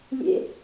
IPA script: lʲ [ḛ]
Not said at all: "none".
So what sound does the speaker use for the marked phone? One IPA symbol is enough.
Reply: ḛ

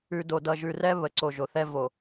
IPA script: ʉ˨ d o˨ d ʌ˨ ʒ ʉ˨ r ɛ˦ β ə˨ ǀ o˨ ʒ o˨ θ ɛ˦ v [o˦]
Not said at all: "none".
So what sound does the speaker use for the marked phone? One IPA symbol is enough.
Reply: o˨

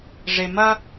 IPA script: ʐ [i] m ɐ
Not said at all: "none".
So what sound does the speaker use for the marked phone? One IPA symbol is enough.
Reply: e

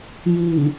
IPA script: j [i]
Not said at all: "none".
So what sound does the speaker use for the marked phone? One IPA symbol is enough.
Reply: i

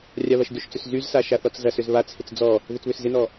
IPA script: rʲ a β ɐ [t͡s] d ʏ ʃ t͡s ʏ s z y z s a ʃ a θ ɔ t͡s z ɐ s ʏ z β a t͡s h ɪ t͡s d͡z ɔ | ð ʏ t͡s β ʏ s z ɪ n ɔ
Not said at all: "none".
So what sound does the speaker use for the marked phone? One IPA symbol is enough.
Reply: ʃ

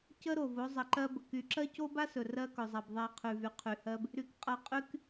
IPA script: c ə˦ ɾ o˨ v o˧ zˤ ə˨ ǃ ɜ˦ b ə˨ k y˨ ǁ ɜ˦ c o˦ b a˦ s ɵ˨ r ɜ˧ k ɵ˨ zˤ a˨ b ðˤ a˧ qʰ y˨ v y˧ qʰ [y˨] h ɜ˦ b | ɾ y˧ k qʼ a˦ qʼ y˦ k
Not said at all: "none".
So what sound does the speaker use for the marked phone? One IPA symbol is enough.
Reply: y˨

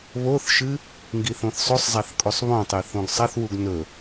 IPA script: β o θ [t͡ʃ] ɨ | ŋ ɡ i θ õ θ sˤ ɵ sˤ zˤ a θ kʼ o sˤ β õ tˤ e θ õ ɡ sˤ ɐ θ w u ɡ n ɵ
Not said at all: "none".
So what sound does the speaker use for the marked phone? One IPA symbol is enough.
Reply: ʃ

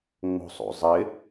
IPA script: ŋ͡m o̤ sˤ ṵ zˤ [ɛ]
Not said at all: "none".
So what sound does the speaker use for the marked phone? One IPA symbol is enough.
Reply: ɪ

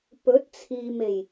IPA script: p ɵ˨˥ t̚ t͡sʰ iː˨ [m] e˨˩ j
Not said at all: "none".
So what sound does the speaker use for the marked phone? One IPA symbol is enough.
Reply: m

